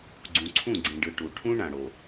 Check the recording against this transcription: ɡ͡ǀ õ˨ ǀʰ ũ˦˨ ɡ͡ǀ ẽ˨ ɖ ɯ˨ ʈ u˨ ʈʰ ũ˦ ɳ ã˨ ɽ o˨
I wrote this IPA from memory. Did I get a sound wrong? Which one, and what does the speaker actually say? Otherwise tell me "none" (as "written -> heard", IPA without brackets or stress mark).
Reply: õ˨ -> ũ˨